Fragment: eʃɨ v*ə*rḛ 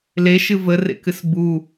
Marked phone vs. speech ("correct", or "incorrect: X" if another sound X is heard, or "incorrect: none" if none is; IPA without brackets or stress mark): correct